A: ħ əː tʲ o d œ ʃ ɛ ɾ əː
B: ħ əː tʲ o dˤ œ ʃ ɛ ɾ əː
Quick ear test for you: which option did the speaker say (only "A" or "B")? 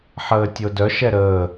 A